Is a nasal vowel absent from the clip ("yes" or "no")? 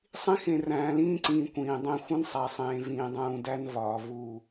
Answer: no